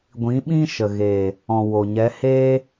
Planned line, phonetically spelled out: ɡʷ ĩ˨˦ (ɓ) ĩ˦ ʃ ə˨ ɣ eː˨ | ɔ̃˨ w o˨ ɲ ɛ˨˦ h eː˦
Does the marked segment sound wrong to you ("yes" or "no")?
no